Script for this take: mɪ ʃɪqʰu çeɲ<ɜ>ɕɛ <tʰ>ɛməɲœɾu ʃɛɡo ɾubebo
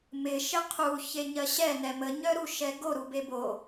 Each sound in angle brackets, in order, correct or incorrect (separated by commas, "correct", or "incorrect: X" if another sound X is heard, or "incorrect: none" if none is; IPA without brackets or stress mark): correct, incorrect: n